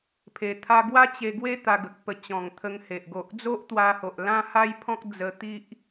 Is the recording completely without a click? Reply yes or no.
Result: yes